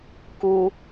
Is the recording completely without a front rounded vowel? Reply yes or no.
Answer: yes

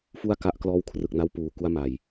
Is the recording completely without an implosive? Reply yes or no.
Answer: yes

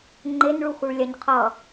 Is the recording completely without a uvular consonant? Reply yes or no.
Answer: no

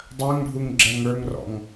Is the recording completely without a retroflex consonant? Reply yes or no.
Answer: no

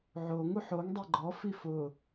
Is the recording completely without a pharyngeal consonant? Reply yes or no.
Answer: no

